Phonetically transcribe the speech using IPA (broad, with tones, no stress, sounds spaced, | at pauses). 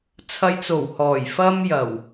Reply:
t͡sʰ ɐ˧ j t͡s o˨˩ w h ɔː˨˩ j f ɐ˥ m j ɐ˨˩ w